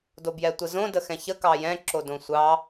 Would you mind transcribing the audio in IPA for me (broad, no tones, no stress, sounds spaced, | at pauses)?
d o b j ɛ tʷ ə z õ d ə x ɛ̃ ç ə k ɑ j ɛ̃ ǁ o d õ sʷ ɑ